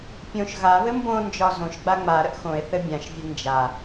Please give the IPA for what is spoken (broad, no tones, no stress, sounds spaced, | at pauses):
pʲ õ ʃ ɣ a β ɘ m b õ n d͡ʒ ɒ z õ ʃ ɡ͡b a ŋ͡m a ɾ ə ʔ x õ e̯ θ ɘ bʲ ã ʃ vʲ ə n d͡ʒ a